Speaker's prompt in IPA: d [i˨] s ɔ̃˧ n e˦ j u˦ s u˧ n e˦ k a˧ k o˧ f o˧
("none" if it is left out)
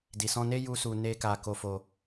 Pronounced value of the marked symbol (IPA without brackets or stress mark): i˨